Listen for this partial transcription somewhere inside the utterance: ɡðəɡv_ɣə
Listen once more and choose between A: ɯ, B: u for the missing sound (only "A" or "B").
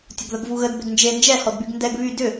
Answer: B